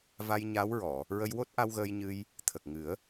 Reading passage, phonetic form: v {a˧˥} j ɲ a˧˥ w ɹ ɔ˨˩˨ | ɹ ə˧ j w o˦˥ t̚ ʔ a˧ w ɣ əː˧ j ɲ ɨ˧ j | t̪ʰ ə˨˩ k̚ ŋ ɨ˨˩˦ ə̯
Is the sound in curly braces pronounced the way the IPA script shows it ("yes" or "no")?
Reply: no